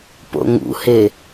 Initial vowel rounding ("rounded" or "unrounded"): rounded